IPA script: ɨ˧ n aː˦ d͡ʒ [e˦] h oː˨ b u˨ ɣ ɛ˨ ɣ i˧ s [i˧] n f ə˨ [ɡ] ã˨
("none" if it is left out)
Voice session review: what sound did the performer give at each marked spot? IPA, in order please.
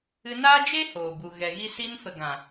e˦, i˧, ɡ

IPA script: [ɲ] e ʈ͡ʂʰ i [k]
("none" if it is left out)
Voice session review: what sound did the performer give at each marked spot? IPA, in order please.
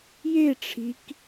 j, k

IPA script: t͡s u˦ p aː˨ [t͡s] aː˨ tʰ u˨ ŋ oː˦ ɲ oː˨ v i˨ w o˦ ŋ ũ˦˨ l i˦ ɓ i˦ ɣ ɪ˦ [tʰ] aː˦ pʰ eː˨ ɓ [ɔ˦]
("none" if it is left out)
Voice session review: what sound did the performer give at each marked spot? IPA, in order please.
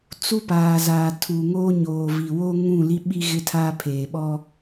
z, tʰ, ɔ˦

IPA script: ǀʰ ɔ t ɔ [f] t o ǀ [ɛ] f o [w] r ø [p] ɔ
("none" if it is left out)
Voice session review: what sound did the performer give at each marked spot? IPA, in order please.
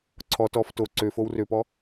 f, ø, w, p

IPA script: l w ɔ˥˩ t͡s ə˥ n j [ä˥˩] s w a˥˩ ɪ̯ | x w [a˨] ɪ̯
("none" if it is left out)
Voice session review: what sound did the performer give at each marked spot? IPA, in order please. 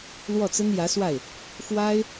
ä˧˥, a˥

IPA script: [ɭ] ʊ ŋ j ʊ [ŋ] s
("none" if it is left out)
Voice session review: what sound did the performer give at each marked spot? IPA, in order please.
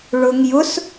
ɭ, none

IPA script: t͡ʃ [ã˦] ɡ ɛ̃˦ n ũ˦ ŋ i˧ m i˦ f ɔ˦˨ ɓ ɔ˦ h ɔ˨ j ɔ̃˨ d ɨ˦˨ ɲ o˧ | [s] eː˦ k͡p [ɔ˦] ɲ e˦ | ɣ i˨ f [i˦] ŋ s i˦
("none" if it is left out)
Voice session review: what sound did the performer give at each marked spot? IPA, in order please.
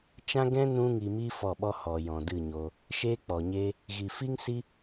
ã˦, ʃ, ɔ˨, i˦

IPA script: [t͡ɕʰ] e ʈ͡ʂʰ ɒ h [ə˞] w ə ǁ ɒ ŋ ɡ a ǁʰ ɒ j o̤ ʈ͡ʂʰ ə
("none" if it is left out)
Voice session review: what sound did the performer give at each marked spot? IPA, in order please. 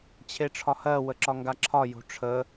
t͡ɕʰ, ɜ

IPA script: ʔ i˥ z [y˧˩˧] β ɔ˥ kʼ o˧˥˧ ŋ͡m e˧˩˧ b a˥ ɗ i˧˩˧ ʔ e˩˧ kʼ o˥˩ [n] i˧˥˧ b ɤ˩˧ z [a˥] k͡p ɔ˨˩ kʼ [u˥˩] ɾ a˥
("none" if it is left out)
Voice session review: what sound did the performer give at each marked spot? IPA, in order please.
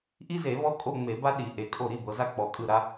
e˧˩˧, ɾ, a˥, ɯ˥˩

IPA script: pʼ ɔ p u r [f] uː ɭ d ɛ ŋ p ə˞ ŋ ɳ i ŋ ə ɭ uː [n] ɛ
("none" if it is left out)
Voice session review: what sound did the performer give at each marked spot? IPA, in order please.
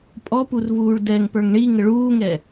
v, ŋ

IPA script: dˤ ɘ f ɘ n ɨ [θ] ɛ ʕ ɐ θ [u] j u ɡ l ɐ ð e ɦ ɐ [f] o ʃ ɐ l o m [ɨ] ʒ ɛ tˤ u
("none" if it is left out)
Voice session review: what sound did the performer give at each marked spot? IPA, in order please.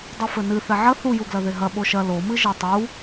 θ, u, ɓ, ɨ

